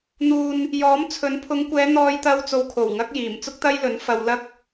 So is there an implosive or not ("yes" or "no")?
no